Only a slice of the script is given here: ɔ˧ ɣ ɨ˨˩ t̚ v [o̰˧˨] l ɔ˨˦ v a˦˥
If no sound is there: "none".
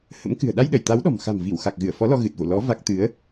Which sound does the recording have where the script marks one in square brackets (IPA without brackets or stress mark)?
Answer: o̰˧˨